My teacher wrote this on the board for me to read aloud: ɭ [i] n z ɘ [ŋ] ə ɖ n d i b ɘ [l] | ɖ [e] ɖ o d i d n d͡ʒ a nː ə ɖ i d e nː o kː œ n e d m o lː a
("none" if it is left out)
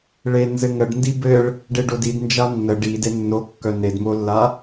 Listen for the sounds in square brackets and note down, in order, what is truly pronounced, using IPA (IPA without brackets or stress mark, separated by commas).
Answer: e, ŋ, ɭ, e